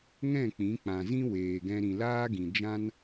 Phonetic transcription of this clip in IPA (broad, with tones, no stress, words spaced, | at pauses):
ŋɛ̃˦˨k͡pĩ˨˦k͡pã˨zĩ˦ weː˨ɡɛ̃˧ ɾĩ˨laː˦ɡĩ˨ d͡ʒã˦n